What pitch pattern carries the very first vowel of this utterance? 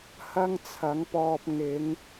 high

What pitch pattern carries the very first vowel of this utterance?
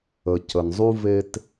low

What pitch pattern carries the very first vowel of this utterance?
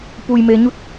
low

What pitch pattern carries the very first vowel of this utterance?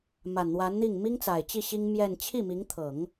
low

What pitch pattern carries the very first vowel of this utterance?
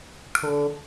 high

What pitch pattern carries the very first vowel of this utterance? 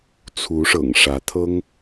rising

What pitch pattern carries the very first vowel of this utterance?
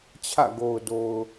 falling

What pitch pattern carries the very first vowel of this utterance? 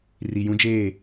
low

